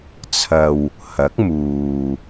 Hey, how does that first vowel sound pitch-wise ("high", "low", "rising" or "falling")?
low